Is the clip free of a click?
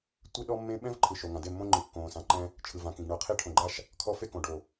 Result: no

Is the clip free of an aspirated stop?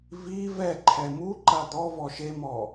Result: no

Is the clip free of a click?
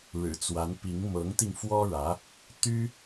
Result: yes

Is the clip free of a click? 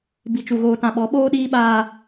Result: yes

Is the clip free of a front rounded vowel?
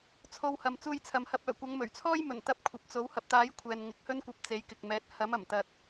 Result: no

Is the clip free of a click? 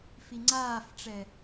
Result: no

